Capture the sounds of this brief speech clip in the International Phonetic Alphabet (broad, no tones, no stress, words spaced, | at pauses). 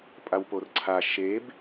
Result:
pʼawporǀʰa ʃeb